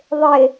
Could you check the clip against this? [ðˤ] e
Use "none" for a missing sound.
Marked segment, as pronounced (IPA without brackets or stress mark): ðˤ